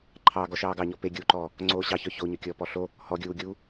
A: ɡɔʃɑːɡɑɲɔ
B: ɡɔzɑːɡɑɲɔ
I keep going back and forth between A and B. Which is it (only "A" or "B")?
A